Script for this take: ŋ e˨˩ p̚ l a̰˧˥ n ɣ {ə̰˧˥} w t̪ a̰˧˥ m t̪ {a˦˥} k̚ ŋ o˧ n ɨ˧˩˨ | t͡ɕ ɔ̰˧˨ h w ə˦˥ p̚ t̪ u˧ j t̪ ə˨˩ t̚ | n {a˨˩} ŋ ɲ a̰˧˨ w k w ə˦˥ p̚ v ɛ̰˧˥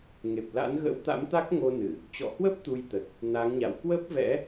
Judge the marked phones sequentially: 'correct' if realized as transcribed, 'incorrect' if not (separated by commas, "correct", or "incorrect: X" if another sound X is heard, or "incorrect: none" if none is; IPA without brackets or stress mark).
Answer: correct, correct, incorrect: a˨˦